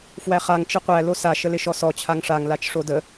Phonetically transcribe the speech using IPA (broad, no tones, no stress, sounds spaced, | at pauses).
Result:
f w æ χ a ŋ t͡ʃ ɪ qʷ æ l o s a ʃ ə l ɪ ʃ ɔ s ɔ t͡ɕʰ a ŋ ʂ a ŋ l a t͡ʃ ʂ o d ə